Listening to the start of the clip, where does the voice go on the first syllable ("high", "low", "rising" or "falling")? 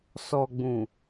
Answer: low